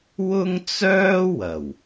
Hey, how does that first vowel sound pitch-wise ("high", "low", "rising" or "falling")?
high